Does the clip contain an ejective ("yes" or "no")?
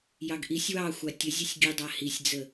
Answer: no